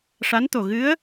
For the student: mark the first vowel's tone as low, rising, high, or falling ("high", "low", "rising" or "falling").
rising